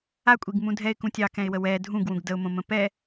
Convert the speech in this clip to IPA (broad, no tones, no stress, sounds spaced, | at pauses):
a kʷʼ i ɡ m ũ dʱ ɛ ɪ̯ k ũ tʲ ɑ k ɛ̃ ɪ̯ w ə w ɛ dʱ ũ ɡ w ũ ɡ d ə ʊ̯ m õ m ə̃ p ɛ